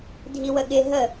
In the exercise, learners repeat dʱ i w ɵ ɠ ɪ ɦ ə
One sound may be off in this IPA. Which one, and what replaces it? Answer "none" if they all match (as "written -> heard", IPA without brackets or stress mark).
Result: ɵ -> ə